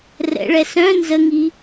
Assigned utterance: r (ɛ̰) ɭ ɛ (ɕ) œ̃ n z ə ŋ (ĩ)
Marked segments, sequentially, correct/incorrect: correct, incorrect, incorrect

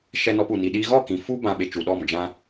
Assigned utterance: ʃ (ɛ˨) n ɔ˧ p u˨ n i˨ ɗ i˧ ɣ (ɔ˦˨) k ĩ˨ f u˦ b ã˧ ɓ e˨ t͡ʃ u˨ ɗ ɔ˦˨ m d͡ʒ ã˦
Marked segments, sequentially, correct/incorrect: incorrect, correct

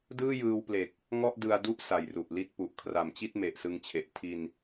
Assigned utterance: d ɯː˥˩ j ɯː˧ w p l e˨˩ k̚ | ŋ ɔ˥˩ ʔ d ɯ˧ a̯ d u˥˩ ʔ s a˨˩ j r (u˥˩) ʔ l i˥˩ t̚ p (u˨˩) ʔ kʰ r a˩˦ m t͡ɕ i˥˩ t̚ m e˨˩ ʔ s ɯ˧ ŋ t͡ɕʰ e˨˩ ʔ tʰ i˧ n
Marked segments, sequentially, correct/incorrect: incorrect, correct

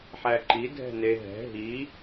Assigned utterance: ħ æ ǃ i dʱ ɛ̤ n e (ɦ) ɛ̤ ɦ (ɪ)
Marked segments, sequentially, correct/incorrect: correct, incorrect

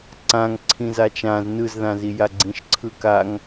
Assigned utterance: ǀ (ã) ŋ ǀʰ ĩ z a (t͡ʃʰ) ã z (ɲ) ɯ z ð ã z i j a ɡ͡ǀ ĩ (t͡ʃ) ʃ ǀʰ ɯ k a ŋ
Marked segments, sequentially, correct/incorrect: correct, incorrect, incorrect, incorrect

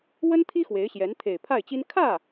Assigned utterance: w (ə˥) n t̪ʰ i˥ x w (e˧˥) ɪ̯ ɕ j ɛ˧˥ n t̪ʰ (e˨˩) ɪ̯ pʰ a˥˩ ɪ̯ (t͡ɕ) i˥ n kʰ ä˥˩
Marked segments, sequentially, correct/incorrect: correct, correct, correct, correct

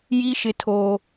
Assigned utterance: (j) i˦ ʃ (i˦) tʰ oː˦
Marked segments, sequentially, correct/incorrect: correct, incorrect

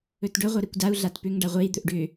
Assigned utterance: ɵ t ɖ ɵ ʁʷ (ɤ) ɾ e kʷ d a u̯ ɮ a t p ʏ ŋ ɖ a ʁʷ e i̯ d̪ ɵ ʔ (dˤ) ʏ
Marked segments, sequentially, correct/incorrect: correct, incorrect

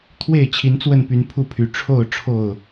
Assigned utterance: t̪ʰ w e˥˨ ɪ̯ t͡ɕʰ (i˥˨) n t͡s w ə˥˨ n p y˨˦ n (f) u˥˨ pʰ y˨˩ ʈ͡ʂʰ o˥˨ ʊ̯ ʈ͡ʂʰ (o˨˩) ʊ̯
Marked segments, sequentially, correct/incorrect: incorrect, incorrect, incorrect

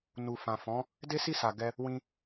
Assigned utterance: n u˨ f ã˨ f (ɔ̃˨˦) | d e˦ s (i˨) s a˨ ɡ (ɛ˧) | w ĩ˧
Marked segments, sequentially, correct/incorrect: correct, incorrect, correct

